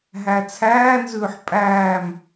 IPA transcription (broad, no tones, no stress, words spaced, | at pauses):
ɦæt͡sʰæːnzʉːħ pʼæːm